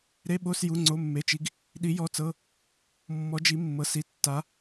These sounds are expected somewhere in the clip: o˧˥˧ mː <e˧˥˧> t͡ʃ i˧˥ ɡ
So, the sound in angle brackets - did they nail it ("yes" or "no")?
yes